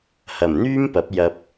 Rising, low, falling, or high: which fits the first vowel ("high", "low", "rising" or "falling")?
low